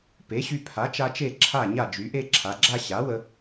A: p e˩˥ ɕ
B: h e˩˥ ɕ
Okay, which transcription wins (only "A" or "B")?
A